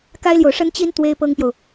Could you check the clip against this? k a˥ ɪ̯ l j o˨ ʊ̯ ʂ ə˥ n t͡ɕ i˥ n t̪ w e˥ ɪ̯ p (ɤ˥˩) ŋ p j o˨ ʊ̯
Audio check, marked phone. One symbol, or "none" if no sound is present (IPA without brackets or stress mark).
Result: ɤ˥